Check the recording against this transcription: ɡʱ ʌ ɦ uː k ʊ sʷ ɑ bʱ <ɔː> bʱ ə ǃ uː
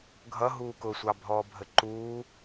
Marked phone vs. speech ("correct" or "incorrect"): correct